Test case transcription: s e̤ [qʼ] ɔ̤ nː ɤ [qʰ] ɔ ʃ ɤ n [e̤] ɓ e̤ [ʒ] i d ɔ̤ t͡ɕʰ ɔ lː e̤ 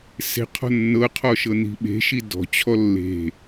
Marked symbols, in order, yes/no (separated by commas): no, yes, no, no